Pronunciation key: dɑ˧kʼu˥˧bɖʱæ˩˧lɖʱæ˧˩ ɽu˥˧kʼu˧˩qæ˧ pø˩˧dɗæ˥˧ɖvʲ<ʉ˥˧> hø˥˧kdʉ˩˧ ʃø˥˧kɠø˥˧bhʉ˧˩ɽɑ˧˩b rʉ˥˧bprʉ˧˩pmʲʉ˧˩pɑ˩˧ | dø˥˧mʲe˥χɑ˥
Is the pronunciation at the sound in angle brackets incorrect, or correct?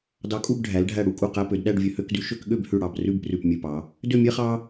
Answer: incorrect